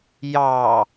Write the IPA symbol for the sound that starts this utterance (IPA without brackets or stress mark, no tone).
j